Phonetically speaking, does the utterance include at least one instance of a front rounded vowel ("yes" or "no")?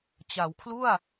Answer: no